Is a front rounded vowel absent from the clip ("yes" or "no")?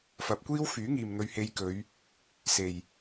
no